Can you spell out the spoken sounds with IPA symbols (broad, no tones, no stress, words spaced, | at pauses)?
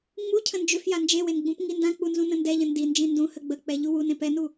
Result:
ŋ͡mucʰə̃ nd͡ʒʏfja nd͡ʒewen ɡ͡bũpŋindãk͡pu nzũnə̃ndɛʎə̃ ndind͡ʒĩ ndũhə ɡ͡bə k͡pɛʎuwunẽ pɛnu